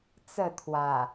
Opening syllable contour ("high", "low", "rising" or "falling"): falling